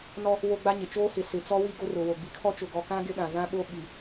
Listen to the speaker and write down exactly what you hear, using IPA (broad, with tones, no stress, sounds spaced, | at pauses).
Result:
n ɔ˦ | w o˦ ɡ͡b a˦ ɲ ɪ˨ t͡ʃ oː˦ h ɪ˨ s ɪ˨ t͡s ɔ˦ w i˦ ɡ o˦ r ʊ˨ w o˨ ɡ͡b i˨ kʰ ɔ˦ t͡ʃ ʊ˨ ɡ ɔ˨ k ã˦ ɡ ɪ˦ ɗ ã˨ v ã˦ ɓ o˦ ɓ i˨